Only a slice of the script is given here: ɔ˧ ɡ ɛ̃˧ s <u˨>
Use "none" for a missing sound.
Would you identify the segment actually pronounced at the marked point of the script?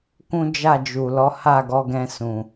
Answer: ũ˨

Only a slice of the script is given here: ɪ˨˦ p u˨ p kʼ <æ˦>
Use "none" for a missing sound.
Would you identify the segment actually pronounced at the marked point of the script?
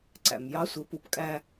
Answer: æ˦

